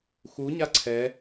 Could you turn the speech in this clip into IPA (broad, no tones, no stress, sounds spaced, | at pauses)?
x u ɲ a ǀʰ ɛ